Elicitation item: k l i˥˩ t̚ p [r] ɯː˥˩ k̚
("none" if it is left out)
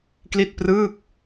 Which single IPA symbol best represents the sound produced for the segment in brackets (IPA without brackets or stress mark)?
r